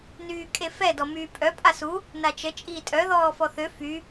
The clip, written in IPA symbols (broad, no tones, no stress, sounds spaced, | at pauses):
n yː kʼ e f ɛ d ɔ m yː pʼ œ pʼ a s u | n a t͡ʃ ə t͡ʃʼ iː tʼ œ ð ɔː f ɔ θ ø f y